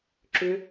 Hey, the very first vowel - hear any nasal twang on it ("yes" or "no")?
no